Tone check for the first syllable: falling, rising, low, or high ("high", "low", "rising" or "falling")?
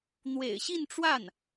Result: low